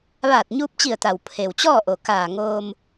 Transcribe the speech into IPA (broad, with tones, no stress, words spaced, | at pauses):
ʋaː˧˩t̚ɲuː˧p̚t͡ɕi˧˩ə̯t̪a˩w pʰe˩wt͡ɕɔː˥˨ʔo˩ kaː˧˩ŋoː˧m